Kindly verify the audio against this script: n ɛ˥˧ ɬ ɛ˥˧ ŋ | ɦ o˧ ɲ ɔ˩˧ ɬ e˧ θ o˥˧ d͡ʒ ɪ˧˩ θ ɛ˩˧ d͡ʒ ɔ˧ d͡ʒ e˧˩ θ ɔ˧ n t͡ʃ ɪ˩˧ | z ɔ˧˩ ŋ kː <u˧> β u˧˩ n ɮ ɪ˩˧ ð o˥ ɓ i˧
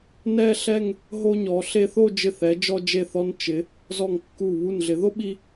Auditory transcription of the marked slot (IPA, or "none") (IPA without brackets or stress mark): u˧˩